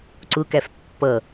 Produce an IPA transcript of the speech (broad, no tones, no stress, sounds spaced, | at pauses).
ǀ ʊ k æ f pː ʌ